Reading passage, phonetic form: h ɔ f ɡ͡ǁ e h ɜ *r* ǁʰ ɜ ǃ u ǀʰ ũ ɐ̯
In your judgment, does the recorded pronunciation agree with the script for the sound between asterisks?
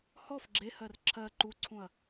yes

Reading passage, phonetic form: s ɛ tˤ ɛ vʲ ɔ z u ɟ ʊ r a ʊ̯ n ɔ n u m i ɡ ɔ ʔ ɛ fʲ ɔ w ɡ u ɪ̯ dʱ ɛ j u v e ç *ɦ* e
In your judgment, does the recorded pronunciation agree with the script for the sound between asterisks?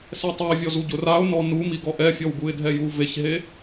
yes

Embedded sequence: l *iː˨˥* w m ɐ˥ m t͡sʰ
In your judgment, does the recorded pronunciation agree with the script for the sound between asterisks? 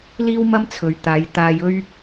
no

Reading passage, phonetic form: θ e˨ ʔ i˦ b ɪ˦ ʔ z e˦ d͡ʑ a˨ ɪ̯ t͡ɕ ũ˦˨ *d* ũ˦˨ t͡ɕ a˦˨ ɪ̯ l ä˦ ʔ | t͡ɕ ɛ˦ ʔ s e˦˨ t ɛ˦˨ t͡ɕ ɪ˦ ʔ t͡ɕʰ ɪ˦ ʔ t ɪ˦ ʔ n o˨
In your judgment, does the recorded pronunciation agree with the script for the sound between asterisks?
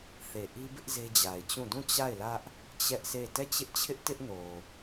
yes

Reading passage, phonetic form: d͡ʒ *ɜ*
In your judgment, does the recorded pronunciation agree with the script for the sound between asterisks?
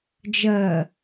yes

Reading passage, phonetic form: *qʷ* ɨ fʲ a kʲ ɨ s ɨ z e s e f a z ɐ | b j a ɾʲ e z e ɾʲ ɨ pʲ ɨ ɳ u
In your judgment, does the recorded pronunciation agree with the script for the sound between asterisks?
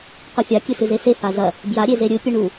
yes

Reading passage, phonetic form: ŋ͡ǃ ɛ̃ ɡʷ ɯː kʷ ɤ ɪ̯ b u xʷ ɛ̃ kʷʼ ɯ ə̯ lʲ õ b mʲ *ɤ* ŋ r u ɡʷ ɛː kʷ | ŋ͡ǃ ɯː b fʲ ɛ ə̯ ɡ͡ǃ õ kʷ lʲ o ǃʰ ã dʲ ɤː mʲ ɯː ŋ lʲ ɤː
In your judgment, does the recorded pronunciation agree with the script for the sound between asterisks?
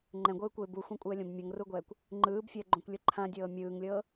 yes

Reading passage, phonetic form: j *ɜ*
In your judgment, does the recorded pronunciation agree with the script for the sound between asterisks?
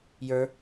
no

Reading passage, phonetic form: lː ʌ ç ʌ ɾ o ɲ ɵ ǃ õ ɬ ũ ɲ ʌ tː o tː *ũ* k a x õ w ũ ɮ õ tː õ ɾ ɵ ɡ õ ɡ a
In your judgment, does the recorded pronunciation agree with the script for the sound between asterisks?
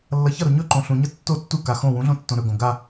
no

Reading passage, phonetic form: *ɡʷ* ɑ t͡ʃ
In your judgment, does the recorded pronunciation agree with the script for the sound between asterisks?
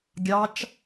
no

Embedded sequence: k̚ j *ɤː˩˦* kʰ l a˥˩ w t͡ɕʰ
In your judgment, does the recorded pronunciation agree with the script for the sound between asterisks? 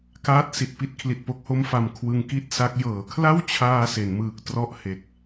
yes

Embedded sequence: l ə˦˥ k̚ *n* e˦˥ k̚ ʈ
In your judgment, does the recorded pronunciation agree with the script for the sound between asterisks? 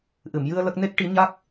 yes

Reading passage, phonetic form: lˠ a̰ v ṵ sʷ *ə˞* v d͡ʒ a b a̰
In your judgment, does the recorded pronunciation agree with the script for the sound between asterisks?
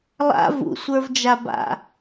yes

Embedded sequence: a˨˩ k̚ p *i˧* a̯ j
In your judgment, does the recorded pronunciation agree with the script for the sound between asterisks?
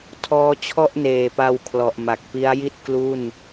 no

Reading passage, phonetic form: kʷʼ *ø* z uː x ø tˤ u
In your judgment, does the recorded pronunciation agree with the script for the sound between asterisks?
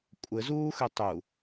no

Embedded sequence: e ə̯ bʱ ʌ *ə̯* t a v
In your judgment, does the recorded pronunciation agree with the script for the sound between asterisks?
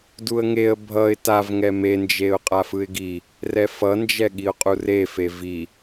no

